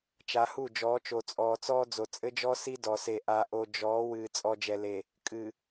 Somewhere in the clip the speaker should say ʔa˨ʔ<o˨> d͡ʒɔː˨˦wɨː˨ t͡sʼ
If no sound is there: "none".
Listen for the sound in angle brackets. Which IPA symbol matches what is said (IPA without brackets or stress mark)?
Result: o˨